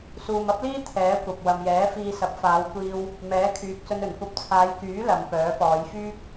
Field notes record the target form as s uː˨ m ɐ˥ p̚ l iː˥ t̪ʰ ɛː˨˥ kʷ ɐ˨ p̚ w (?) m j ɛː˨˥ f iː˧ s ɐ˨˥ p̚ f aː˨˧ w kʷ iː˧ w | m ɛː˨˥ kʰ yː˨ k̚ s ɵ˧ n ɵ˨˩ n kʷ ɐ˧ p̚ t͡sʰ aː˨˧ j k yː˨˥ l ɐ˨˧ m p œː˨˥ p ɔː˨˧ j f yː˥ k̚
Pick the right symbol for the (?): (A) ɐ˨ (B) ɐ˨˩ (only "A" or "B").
A